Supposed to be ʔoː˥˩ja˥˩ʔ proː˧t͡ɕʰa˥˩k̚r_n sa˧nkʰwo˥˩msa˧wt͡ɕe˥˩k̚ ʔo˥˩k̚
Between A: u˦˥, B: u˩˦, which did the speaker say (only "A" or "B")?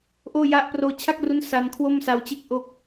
A